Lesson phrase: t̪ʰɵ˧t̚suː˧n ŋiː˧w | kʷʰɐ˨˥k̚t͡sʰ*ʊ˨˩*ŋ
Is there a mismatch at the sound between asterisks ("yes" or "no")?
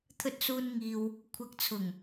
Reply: no